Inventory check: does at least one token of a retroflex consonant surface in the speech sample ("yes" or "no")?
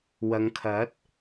no